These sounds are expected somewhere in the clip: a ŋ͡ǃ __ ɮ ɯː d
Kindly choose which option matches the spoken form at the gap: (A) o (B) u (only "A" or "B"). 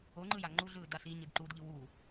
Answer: B